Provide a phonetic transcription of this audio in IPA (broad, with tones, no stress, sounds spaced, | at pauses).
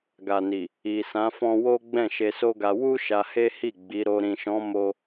ɡ a˨ n i˨ | i˨ s ã˨˦ f ɔ̃˧ w o˦ ɡ͡b ɛ̃˦˨ ʃ e˧ s o˦ ɡ a˧ w u˦ ʃ a˧ h e˦ h i˦˨ ɡ͡b i˨˦ ɾ o˧ ɾ ĩ˨ ʃ ɔ̃˨˦ m o˧